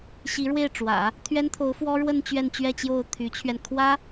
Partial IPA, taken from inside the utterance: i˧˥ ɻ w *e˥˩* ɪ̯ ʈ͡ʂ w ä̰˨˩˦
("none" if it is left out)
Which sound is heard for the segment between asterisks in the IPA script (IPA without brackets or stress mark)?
e˥˩